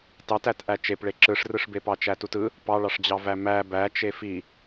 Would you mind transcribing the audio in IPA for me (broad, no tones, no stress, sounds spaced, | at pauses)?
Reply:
t ɑ t æ t ʔ æ t͡ʃ e p ɭ e ǁ ɯ ʂ r ɯ ʂ b e p ɑ t͡ʃ æ t u t ɯ | p ɑ ɭ ɑ ʂ d͡ʑ ɑ v æ m æ b æ t͡ʃ e f i